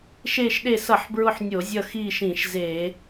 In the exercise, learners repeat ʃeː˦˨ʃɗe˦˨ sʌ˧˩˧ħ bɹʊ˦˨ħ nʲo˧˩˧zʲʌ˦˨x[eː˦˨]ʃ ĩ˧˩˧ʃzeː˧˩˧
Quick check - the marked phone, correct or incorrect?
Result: incorrect